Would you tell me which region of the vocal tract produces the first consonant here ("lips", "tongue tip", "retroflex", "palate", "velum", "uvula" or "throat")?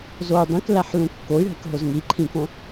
tongue tip